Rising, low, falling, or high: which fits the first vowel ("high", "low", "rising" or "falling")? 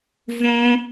high